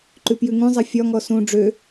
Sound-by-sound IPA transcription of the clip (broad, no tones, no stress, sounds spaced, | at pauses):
ǃ ʉ p j ʉ ŋ ũ zˤ ɛ fʲ ɒ ŋ ɔ s ũ ɖ͡ʐ ø